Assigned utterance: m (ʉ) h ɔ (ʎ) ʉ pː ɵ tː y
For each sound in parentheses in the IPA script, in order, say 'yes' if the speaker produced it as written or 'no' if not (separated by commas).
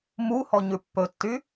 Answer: no, no